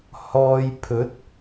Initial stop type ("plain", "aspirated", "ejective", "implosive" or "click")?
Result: aspirated